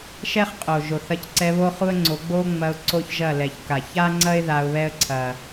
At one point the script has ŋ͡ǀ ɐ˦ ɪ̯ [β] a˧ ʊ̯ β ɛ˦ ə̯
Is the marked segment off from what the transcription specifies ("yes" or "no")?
yes